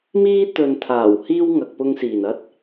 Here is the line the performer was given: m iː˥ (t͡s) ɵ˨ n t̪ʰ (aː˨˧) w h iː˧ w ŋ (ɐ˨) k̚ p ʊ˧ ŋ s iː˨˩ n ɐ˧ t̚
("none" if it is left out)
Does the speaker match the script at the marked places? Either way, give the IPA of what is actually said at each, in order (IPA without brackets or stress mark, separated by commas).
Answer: t̪, aː˨˩, ɐ˨